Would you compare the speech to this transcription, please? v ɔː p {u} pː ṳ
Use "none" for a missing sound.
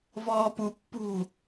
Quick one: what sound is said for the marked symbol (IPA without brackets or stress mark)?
u